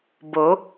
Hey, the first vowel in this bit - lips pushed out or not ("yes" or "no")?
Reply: yes